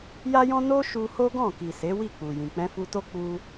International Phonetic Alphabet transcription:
j a˦ j ɔ̃˦ n o˦ ʃ u˧ h o˦ ɡ ɔ̃˦˨ k i˨ s e˨˦ w i˦˨ k͡p u˨ j ĩ˨ k͡p ɛ̃˧ f u˧ t o˦ k͡p u˧

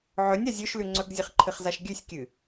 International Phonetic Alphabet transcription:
ʕ ɵ nʲ a zʲ ɵ ʃ l ʉ ŋ͡ǀ ɵ ɡ zʲ ɨ χ ǃʰ ɨ χ z a ʃ ɡʲ ʉ sʲ kʲ ɨ

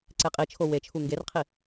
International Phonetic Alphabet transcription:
ǀ e qʼ i t͡ʃʰ o w e t͡ʃʰ u ŋ ɡ e r qʰ i

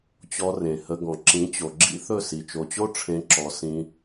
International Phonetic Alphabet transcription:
t͡ɕ ɔ˧ r ẽ˨ h ə˧ ɡ ɔ̃˨ ǁ ĩ˨˦ t͡ɕ o˨ ɡ͡ǁ ḭ˦ θ ɵ˦˨ s i˨ t͡ʃ o˨ t͡ɕ o˦ ʈ͡ʂʰ ẽ˧ ǁ ɔ˨ s ĩ˧

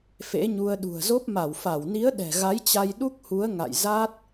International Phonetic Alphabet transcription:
f ḛ˧˥ ɲ u˧ ə̯ ɗ ṳ˨˩ ə̯ z o˦˥ p̚ m a˧˩ w f a˧˩ w n i˨˦ ə̯ ɗ ɛ̤˨˩ ɣ a˨˦ j t͡ɕ a˧ j ɗ u˦˥ k̚ h u˨˦ ə̯ ŋ a̰˧˨ j z a˦˥ t̚

